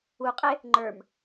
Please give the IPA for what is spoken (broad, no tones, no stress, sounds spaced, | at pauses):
u qʼ e | ŋ͡ǃ ə˞ m